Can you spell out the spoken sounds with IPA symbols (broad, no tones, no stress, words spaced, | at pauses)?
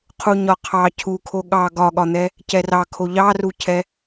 qʰuɲɒqʰɑ cʰukʰo ɠɑ ɡɒɠɒn̪ɛ | cɛrɑkʰo ʎɑrucʰɛ